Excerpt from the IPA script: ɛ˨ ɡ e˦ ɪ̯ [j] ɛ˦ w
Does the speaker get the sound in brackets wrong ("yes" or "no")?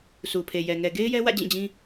no